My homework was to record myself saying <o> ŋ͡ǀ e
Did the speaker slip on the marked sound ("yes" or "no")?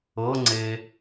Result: yes